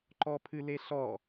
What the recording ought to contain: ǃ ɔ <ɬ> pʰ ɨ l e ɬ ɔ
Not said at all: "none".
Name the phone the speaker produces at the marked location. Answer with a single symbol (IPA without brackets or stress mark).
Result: none